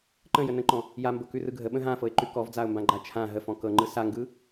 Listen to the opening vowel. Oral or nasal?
nasal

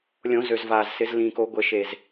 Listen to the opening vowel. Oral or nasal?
nasal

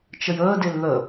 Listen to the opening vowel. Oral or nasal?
oral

